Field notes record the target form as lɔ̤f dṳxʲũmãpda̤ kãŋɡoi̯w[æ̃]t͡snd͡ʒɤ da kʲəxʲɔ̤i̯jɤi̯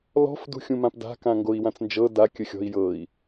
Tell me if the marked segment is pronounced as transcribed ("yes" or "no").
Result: no